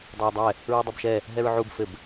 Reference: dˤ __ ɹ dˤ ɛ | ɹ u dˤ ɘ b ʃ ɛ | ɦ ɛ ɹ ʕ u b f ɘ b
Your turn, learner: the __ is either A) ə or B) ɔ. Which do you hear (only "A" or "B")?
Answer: A